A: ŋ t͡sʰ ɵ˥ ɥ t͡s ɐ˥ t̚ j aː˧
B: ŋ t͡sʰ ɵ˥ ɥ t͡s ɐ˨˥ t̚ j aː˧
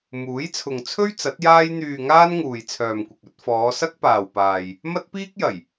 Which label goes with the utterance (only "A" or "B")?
B